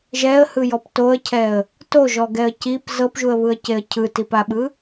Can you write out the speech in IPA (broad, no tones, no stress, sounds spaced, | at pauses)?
ʒ ɛ ə̯ h ɯ j ɔ p t o ə̯ cʰ ɛ ə̯ | t o ʒ ɔ ɡ ɛ ə̯ c i p z ɤ p ʒ u ə̯ β ɯ ə̯ c e ə̯ cʰ ɯ t i p a ɓ ɯ